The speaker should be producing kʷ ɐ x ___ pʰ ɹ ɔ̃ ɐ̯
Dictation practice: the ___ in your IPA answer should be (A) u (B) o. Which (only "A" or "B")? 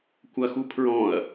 A